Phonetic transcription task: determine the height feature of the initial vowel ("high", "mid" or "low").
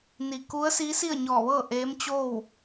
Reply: high